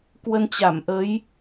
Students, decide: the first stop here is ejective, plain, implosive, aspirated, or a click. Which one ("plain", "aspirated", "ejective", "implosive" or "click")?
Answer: plain